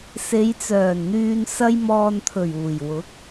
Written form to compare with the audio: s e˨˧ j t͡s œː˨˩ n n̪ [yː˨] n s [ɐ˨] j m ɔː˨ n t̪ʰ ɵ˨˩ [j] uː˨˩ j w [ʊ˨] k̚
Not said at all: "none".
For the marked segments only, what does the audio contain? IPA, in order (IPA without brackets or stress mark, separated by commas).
yː˨, ɐ˧, ɥ, ʊ˨˥